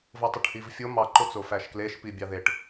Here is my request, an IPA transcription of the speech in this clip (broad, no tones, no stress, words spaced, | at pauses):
votˤoʈhivfʲo mɑǃot͡sofæʃ kleʃpi bʲɑðeʈ